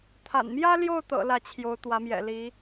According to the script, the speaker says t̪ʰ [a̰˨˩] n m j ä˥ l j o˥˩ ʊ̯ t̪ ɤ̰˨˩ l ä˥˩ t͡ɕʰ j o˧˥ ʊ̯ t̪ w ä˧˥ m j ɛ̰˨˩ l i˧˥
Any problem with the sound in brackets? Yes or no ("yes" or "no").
no